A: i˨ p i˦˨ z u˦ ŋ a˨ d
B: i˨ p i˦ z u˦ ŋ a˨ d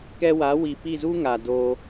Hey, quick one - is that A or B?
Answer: A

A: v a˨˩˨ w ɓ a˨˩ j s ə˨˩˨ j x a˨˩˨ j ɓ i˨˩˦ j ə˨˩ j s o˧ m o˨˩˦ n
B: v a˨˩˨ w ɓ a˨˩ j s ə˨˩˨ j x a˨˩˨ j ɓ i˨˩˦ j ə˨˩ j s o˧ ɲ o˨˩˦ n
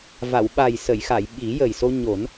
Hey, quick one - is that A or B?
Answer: B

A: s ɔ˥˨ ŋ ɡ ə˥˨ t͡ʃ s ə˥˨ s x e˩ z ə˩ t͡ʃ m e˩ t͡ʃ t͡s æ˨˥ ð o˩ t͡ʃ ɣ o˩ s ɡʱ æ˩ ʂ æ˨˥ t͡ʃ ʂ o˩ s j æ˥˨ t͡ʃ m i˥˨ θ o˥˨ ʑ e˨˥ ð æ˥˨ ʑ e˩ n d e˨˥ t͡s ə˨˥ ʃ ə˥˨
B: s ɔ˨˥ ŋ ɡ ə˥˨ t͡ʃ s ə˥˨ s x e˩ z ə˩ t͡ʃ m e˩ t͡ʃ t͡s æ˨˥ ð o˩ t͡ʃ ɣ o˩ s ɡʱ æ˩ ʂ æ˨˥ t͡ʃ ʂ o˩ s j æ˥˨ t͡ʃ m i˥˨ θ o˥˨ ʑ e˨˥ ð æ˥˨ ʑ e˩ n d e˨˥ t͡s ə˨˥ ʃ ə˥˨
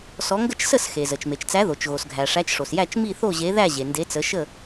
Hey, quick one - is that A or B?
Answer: B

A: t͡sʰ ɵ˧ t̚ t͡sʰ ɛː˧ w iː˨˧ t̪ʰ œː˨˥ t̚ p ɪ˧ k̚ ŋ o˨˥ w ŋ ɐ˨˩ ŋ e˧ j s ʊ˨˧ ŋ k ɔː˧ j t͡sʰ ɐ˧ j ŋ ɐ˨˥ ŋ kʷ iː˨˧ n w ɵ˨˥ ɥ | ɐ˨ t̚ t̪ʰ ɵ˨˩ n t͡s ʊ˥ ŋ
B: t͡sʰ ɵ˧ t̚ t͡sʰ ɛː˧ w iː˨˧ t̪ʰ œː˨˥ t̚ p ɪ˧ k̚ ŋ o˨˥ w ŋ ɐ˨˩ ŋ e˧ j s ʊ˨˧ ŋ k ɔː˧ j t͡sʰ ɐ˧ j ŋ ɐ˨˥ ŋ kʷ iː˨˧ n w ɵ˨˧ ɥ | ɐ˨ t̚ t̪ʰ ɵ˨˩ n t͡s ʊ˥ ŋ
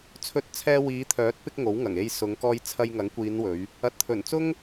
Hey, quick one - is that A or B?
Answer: B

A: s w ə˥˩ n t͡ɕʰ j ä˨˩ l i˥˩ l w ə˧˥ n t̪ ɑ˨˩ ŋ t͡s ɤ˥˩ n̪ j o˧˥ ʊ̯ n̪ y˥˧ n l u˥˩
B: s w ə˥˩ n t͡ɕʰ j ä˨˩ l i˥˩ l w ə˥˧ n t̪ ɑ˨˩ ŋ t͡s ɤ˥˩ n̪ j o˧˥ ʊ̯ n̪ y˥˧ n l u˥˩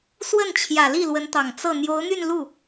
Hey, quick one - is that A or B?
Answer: A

